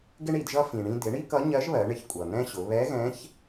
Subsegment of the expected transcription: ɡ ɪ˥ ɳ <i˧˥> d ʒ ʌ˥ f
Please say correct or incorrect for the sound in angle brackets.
incorrect